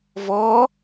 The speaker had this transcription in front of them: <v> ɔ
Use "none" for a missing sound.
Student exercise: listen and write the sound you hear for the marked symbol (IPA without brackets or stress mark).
v